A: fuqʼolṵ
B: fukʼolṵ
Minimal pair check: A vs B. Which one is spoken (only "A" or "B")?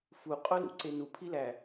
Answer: A